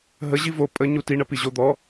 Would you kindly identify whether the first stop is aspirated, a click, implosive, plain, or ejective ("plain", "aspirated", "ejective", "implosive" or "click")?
ejective